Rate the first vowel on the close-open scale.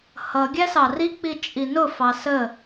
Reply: mid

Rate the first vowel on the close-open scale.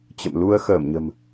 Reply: mid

